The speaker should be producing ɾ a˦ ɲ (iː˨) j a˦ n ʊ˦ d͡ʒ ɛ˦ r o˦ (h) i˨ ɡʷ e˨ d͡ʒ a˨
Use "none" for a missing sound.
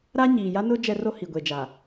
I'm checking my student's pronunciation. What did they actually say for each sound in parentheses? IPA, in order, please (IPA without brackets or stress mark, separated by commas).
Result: iː˨, h